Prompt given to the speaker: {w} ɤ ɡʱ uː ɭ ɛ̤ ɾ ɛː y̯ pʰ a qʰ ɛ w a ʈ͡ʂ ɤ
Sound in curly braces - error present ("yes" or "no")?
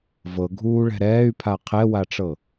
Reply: yes